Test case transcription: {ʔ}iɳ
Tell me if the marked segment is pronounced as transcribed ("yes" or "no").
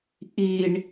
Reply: yes